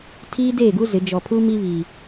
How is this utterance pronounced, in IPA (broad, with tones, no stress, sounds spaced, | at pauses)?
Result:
tʰ iː˦ d eː˦˨ ɡ u˦ z ɪ˨˦ d͡ʒ ɔ˨ pʰ u˦ m i˦ β iː˨